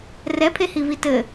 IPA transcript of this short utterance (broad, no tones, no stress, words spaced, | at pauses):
rɛpʰehivi tɘ